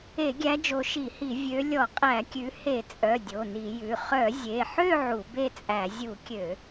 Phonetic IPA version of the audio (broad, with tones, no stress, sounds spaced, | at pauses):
e˧˩˧ ɡʲ æ˨˦ d͡ʒ o˨˦ ʃ i˧˩˧ h i˧˩˧ vʲ ø˨˦ lʲ ɔ˧˩˧ qʼ æ˧˩˧ kʲ ʉ˨˦ h e˧˩˧ t͡sʼ œ˩˧˩ dʲ o˩˧˩ n i˧˩˧ j ʉ˩˧˩ χ œ˧˩˧ zʲ e˩˧˩ ħ ø˥˧ ʕ u˧˩˧ b e˥˧ t͡sʼ æ˧˩˧ zʲ u˧˩˧ kʲ ø˧˩˧